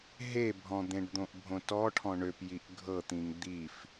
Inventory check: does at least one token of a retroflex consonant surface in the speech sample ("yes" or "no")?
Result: yes